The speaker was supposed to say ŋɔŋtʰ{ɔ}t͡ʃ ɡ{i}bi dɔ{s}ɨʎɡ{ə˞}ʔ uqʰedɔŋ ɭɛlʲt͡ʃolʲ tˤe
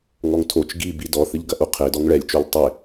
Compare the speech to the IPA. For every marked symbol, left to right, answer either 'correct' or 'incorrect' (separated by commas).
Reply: incorrect, correct, incorrect, incorrect